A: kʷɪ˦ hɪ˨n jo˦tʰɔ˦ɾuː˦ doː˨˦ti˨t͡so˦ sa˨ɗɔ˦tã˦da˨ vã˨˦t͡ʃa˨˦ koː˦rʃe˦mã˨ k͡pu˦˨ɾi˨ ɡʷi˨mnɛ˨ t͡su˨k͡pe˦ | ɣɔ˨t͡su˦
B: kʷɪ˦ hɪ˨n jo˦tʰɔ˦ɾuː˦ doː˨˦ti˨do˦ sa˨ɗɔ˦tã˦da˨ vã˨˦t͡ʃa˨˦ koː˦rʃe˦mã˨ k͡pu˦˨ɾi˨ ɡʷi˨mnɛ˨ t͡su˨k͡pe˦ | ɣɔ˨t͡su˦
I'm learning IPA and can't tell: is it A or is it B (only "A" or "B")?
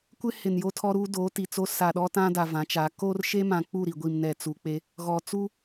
A